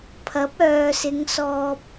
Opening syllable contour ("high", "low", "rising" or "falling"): rising